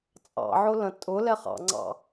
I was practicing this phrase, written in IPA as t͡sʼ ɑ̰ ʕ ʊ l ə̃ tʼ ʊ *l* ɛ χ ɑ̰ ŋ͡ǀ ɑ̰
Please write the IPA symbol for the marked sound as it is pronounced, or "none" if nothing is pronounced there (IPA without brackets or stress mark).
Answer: l